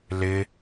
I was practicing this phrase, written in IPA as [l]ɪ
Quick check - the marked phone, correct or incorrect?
correct